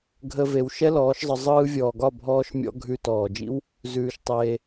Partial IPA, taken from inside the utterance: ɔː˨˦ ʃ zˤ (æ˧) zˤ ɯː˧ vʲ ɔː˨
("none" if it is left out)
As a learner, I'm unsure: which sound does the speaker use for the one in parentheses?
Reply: ə˧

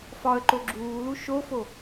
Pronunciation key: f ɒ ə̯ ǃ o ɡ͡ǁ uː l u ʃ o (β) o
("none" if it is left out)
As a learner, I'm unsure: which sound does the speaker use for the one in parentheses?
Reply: f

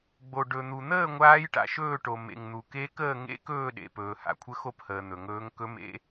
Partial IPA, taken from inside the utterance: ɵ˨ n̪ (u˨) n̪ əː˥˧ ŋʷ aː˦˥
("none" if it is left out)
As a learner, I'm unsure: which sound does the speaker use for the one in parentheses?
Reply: u˨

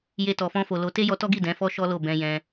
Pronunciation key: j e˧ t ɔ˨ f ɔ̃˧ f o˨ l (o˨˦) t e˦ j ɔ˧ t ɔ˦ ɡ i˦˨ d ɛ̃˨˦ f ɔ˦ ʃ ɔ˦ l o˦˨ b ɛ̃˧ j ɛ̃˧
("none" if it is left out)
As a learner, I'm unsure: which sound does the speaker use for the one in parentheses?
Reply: o˨˦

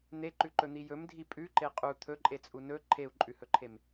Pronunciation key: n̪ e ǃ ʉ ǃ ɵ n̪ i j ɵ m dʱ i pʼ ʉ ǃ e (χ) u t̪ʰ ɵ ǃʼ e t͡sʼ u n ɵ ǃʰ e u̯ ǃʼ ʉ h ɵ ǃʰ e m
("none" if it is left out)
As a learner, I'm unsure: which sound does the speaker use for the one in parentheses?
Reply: qʼ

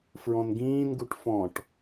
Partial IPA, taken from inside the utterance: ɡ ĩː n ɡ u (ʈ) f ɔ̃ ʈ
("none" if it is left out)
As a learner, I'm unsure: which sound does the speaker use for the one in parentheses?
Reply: ʈ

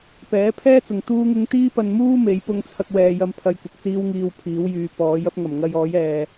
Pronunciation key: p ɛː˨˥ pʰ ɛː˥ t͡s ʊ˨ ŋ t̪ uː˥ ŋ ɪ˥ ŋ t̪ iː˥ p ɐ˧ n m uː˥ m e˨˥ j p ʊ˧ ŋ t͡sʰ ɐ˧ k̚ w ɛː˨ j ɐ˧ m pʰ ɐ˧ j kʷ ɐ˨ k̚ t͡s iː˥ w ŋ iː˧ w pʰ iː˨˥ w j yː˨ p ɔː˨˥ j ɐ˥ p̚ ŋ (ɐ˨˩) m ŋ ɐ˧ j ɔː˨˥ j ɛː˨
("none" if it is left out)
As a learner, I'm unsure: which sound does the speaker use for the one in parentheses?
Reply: ɐ˨˩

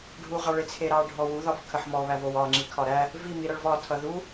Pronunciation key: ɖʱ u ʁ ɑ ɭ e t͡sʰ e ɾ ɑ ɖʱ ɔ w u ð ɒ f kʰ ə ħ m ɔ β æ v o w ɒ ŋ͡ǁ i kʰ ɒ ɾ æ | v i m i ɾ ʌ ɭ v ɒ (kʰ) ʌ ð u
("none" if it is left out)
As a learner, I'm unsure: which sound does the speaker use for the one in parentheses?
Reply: tʰ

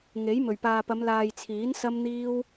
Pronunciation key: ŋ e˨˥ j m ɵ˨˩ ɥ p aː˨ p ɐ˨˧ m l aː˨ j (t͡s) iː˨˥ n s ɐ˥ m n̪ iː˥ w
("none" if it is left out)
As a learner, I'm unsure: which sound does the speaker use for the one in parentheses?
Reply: t͡sʰ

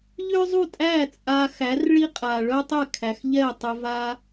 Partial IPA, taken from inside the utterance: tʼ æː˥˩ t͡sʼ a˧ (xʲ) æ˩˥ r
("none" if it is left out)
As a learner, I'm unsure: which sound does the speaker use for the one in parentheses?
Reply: x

